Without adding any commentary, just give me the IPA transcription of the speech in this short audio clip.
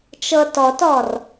t͡ʃ ɤ t ɔ t ɔ r

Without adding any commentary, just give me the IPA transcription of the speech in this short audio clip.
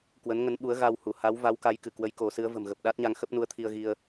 k w ə˨˦ n ŋ ə˨˦ n ɓ u˨˦ ə̯ ɣ a˧ w h u˧˩ h a˨˦ w v a˨˦ w k a˨˦ j k ɨ˧˩ k w ə˨˦ j k o˨˦ s ɨ˨˦ ə̯ v ə̤˨˩ m ɣ ə˨˩ p̚ ɗ a˦˥ t̚ ɲ a˧ ŋ x ə˦˥ p̚ n u˨˦ ə̯ t̪ʰ i˧ ə̯ ɣ i˧ ə̯

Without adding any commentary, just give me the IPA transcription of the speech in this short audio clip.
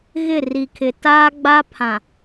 ɣ ɪ˦˨ r i˨ kʰ ɪ˨ t aː˦ ɡ͡b a˦ pʰ ã˨

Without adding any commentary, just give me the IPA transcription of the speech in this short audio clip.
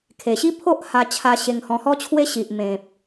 kʰ e˨˩ ɕ i˦ pʰ o˦ ʔ h a˧ t͡ɕʰ a˧ ɕ e˧ ŋ h ɔ̃˧ h ɔ˦ t͡ɕʰ w e˦ ɕ i˨ ʔ m ẽ˨ p̚

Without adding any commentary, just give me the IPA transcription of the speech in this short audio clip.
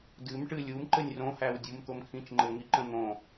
d ɨ m ʈ ɨ lʲ u m ǃ ɘ nʲ r õ h æ w dʲ u m t̪ o m kʰ ĩ t͡ʃ ŋ͡ǃ ɘ ŋ i ǃ ə̃ n̪ õ

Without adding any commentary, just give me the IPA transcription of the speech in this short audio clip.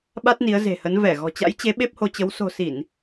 ɓ a˦˥ t̚ n i˨˦ ə̯ z e̤˨˩ h ə˨˦ n v ɛ˧˩ ɣ ɔ̤˨˩ t͡ɕ a̰˧˥ j t͡ɕ e˨˦ ɓ e˦˥ p̚ h o˧ t͡ɕ ə˨˦ w s o̤˨˩ s i˧˩˨ n

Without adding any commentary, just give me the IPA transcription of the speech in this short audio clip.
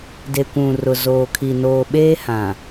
d e˨ kʷ ũ˨ r ʊ˨ z oː˨ kʰ i˨ n oː˨ ɓ eː˦ h ã˨

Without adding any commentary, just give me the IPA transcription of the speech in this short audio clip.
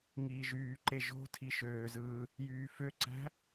ŋ iː ʒ yː ǃ e ʒ o̤ tʰ i ʃ øː z ɯː | j yː f ø ǀ æ̤

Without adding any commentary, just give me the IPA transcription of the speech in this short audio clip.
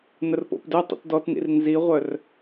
n ə r p o̰ p d ø tˤ ḭ t d ɔ t n ḭ r n z i ʁʷ œ r

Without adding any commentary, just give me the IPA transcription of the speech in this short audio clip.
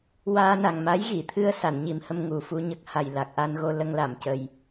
w aː˧ n a˨˩ ŋ m a˧˥ j ɣ i˨˩˨ t̪ʰ ɨ˧ ə̯ s a˨˩˨ n ɲ i˨˩ m h ə˧ m ŋ u˨˩ f u˧ ɲ ə˦˥ k̚ h a˨˩ j l a˨˩ k̚ ʔ a˧ n ɣ o˧ l ə˧ ŋ l a˨˩˨ m c ə˨˩ j

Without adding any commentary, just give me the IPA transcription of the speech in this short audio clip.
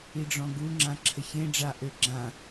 i ɖ͡ʐ ɔ̃ ɡ u ŋ͡ǁ ã ǁʰ ə ç ẽ ɖ͡ʐ a ʔ ø ɡ͡ǁ ã

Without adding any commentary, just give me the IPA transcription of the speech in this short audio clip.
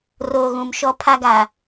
r oː˨ ɣ ũ˨ m ʃ ɔ˦ pʰ a˦ ɡ a˨

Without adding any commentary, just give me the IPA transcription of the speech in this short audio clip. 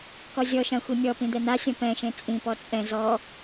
k ɔ zʲ ɔ ʃ ã xʷ i mʲ ɔ p ĩ d̪ ɛ n̪ a sʲ ɔ̃ p ɛ̃ ʃ ẽ t͡sʼ ĩ p ɔ t͡sʼ ɛ̃ z ɔ

